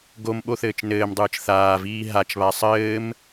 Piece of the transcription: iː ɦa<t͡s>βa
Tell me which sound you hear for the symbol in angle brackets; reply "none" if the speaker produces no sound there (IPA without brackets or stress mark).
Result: t͡ʃ